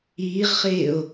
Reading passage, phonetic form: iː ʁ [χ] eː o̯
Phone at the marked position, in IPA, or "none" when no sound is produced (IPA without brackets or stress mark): χ